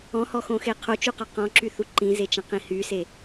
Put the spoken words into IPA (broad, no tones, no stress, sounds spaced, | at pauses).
ɔ̃ h ɔ x õ x e qʰ o t͡ʃ u q ɒ q ɔ̃ ǁ y θ u ǃ ĩ z e t͡ʃ ɐ̃ q ĩ h y s e